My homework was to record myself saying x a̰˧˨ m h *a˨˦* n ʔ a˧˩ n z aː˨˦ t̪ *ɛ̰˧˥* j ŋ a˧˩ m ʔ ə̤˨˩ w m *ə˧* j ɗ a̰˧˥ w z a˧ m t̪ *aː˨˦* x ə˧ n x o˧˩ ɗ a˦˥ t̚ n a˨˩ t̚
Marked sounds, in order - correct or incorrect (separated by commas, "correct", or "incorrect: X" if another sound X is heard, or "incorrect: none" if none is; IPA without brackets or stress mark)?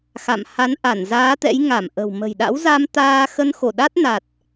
correct, correct, incorrect: ə̤˨˩, incorrect: aː˧